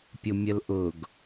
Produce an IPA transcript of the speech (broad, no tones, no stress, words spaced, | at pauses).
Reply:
pʲʊmʲəlʔʊɡ